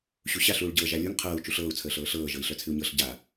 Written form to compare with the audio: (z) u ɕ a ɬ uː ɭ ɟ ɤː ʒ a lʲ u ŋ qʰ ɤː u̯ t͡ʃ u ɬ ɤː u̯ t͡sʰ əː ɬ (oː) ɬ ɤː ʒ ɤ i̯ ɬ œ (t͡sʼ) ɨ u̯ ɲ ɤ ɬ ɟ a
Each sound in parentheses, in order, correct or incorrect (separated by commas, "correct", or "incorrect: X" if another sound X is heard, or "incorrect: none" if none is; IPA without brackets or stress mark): incorrect: ɕ, incorrect: ɤː, incorrect: t͡sʰ